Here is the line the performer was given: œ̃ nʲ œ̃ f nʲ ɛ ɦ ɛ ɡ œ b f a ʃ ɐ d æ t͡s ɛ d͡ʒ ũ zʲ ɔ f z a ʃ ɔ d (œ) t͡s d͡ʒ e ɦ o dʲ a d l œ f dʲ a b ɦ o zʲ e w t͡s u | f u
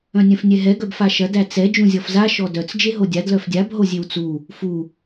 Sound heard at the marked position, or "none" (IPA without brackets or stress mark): œ